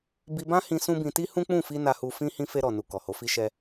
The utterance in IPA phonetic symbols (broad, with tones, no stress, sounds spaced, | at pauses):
b i˧ b ã˦ h ĩ˧ s ũ˦ b ĩ˧ t i˦ h ũ˦ k͡p ũ˦˨ f i˧ n a˧ h u˧ f ĩ˦ h ĩ˧ f e˧ ɾ ɔ˨ n u˨ k ɔ˨ h o˨˦ f i˦ ʃ ɛ˦